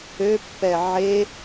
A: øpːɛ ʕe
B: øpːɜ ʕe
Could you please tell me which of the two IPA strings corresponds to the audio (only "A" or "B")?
A